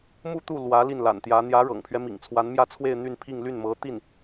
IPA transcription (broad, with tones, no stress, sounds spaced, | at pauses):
m u˥˧ t̪ u˥˩ l w ä˧˥ l i˥˩ n l a̰˨˩ n t̪ j ä˧˥ n̪ j ä˧˥ ɻ ɤ̰˨˩ ŋ pʰ ɥ ɛ˦ m ḭ˨˩ ŋ t͡sʰ w a˧˥ n m j ä˥˧ t͡sʰ w e˥˧ ɪ̯ n̪ y˥˧ n pʰ i˥˧ ŋ l y˥˩ n m ɤ˧˥ t̪ i˥˩ n